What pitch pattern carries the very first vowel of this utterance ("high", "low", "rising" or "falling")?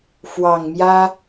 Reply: low